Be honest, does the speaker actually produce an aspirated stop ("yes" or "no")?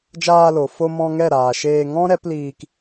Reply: no